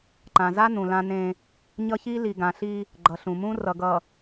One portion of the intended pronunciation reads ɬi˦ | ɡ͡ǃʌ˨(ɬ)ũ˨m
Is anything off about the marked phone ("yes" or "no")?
no